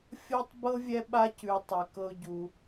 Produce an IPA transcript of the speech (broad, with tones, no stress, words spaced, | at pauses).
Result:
fʲɤ˥tˤbɤ˥vʲɛ˦ ɓa˦cʉ˨ tˤɛ˩kɤ˨ʊ̯ ɟu˩